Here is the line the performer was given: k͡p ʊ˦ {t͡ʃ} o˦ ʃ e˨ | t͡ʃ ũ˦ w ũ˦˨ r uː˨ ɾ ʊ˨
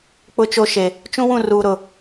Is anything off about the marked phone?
no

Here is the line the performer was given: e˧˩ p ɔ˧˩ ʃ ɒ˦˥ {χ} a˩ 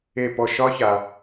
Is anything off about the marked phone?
yes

